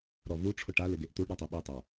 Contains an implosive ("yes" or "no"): yes